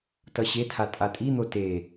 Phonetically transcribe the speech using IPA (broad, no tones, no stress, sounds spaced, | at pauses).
t ʌ ɕ e tʰ a tʼ a tʼ i n̪ o t e